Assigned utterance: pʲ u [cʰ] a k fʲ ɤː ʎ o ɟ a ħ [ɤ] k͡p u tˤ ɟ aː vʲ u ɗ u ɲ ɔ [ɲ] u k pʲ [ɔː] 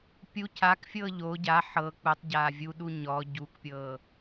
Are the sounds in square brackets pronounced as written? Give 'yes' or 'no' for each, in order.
yes, yes, no, no

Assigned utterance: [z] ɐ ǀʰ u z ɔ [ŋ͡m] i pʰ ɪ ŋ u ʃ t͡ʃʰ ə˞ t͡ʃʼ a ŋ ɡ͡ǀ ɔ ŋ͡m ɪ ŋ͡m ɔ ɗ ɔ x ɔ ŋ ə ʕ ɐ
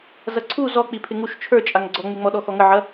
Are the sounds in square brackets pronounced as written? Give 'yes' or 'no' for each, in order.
yes, no

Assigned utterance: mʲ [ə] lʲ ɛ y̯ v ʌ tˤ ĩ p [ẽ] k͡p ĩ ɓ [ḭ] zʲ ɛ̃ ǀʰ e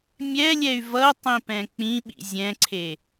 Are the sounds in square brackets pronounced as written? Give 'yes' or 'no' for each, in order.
no, no, yes

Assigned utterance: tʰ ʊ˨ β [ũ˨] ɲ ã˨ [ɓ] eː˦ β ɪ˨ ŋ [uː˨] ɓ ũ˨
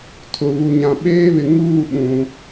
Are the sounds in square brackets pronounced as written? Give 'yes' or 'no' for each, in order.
no, yes, no

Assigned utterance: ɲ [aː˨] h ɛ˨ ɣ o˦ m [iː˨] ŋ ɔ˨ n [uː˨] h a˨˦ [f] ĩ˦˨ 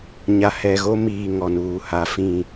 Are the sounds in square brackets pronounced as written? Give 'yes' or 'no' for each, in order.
no, yes, yes, yes

